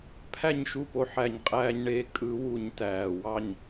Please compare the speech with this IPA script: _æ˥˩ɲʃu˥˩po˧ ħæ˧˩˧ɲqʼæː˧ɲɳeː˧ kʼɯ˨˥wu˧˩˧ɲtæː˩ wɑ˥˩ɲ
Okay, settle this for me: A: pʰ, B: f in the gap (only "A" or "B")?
A